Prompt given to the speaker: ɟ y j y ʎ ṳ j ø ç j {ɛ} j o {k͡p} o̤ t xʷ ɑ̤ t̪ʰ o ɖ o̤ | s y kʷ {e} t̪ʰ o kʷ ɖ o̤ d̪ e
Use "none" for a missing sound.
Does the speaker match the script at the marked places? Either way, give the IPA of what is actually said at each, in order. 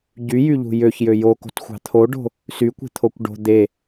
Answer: ø, k, e̤

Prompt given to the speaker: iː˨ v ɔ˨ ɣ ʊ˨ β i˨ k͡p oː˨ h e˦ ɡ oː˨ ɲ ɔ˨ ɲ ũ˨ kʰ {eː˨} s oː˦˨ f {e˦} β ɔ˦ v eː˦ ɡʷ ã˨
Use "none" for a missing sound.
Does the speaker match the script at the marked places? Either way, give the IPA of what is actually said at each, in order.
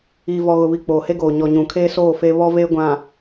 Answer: eː˦, e˦

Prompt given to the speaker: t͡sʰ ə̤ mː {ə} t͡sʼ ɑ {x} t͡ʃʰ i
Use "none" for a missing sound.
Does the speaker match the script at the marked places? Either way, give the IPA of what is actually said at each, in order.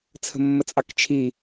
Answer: ə, k

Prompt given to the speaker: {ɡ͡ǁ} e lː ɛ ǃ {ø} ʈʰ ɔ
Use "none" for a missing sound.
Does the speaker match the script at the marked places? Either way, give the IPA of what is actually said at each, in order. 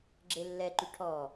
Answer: ɡ͡ǁ, y

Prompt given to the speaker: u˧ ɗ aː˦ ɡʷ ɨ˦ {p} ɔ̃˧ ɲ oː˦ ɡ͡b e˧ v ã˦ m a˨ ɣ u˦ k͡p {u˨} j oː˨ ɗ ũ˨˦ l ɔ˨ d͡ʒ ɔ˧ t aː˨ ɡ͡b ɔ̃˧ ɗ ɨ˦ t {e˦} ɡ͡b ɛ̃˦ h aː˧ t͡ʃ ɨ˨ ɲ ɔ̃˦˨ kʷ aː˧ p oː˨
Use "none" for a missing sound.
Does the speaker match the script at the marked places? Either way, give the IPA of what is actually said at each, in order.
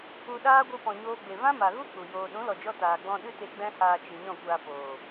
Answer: p, u˨, e˧

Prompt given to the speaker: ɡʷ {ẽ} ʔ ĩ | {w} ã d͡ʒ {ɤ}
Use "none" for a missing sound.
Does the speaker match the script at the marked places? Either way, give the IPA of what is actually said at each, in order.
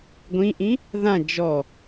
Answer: ĩ, ð, ɔ

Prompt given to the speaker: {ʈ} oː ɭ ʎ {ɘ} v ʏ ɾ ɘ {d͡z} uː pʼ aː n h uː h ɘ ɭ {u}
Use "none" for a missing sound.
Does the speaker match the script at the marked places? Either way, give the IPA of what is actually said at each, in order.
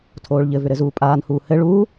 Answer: tʰ, ɘ, z, uː

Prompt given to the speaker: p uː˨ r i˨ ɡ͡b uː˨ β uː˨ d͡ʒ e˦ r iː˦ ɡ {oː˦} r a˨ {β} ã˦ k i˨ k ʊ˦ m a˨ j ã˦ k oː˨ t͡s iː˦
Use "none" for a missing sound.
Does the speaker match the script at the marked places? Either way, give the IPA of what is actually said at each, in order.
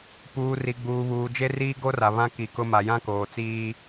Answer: o˦, β

